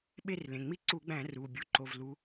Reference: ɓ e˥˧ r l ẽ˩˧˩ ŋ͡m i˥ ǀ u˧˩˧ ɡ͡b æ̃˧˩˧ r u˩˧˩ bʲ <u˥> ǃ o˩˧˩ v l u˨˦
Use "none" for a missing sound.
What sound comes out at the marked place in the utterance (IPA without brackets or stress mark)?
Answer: u˨˦